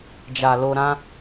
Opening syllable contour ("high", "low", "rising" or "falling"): low